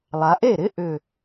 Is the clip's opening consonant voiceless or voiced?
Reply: voiced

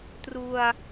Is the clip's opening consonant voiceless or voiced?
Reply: voiceless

